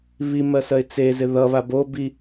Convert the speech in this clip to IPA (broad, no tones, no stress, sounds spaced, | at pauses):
β i m ɜ s ɜ ɪ̯ t͡s e z ɪ ð ʌ β a b o b i